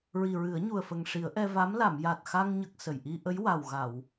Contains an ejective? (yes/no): no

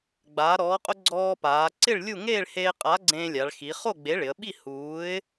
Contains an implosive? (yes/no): yes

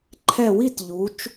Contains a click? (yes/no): yes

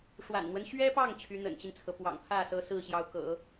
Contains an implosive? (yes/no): no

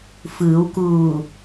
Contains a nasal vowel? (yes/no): no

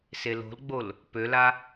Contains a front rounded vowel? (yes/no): yes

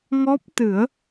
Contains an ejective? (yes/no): no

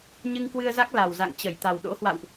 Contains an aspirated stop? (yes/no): no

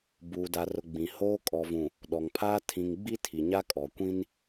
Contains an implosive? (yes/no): yes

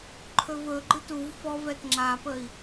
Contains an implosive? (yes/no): no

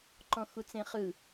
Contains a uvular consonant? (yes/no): yes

